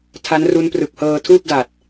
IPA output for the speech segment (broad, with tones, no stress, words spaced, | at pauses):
tʰa˦˥nru˦˥nprɯ˨˩k̚hɤː˧ tʰuː˥˩p̚da˨˩t̚